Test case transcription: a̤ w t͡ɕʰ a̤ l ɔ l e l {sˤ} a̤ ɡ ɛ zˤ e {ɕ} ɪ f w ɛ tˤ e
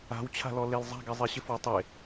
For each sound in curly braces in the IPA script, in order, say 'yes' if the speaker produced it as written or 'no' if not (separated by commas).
no, yes